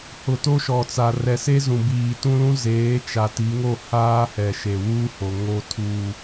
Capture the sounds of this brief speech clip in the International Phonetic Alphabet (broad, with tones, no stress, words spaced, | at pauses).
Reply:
hʊ˨ to˦ʃɔ˨t͡sa˨ rɛ˨se˦zũ˨biː˨ tũ˦lũ˦ zeː˨˦ t͡ʃa˨ti˨˦ŋo˦˨ haː˦hɛ˨ ʃe˨wuː˦ho˨ ŋo˦tʰu˦